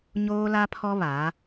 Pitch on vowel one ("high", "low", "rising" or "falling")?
high